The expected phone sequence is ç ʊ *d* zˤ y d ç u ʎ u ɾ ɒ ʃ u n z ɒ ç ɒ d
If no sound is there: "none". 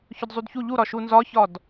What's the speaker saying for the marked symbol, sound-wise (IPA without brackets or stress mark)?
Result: d